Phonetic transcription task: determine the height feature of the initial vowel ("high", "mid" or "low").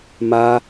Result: low